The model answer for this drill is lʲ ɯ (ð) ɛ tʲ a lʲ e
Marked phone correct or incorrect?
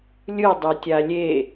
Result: incorrect: dˤ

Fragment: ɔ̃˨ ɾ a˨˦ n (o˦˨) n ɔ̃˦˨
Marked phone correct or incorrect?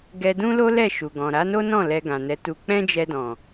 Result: incorrect: o˦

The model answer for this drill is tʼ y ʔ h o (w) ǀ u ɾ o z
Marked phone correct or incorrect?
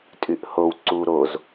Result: correct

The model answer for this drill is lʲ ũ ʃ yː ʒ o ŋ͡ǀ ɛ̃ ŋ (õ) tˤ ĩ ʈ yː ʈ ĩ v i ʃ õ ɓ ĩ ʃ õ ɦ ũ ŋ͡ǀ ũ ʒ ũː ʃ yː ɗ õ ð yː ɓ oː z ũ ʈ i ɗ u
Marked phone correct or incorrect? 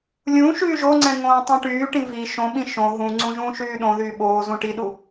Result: incorrect: õː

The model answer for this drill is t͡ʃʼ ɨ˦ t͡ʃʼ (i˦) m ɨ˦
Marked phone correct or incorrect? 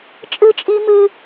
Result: correct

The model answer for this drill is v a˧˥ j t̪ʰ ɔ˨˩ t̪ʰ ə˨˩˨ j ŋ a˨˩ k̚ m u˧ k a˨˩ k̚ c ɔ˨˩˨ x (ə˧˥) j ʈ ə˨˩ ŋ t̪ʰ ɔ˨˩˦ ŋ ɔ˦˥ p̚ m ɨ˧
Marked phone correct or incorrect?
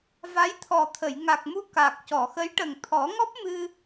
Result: correct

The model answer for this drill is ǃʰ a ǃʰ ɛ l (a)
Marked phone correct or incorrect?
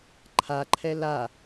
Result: correct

